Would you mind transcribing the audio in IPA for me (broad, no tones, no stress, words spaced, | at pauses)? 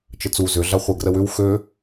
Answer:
t͡ʃət͡su zʏ ɮaχʷɛɡrəwʏw xø